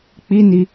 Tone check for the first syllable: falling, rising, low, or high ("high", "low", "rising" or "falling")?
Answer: high